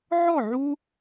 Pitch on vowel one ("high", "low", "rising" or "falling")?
falling